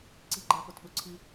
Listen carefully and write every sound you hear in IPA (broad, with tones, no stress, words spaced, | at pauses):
ǀi˥ɡ͡ǃa˥ pʊ˥˩tɓʊ˥ǀʰi˥